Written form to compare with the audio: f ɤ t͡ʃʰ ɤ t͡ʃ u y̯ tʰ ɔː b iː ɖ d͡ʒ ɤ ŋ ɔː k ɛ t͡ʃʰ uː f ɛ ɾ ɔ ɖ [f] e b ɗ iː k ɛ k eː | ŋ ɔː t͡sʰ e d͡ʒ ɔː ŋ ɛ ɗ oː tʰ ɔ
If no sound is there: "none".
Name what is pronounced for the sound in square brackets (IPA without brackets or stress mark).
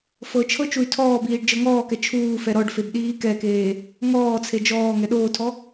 f